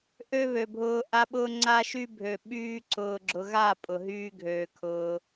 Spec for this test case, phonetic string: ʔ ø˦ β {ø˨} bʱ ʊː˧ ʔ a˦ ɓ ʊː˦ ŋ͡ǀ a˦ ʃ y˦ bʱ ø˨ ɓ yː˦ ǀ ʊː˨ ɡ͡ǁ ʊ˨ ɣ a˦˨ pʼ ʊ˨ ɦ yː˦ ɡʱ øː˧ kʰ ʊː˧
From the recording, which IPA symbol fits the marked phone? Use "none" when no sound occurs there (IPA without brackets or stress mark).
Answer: ø˨